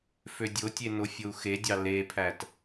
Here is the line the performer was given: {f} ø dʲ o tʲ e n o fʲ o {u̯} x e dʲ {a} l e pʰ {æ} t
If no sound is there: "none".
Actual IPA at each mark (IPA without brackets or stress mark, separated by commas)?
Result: f, u̯, ɑ, æ